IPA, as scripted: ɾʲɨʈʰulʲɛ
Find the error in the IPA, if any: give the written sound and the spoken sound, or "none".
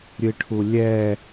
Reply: none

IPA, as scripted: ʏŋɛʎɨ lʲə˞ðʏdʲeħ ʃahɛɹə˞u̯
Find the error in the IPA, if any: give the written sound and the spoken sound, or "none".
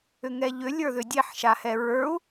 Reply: ɨ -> ʏ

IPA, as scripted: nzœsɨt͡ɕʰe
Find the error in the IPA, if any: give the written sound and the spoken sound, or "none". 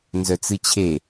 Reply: s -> t͡s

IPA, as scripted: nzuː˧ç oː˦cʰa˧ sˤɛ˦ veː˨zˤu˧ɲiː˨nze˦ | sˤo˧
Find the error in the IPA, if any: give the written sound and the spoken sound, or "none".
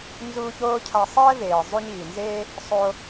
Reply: none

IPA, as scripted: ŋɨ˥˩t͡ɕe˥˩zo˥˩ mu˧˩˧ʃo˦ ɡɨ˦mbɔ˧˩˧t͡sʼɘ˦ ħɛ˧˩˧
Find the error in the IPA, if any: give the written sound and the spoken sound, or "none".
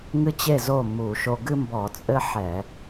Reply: none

